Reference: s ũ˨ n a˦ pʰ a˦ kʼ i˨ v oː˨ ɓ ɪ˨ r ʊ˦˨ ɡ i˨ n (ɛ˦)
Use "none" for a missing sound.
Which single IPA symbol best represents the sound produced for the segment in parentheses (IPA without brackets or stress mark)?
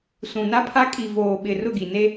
e˦